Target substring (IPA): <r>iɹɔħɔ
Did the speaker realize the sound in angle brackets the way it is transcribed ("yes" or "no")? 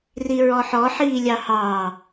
yes